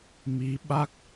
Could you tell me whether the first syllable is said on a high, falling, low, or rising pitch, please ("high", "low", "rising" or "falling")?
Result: rising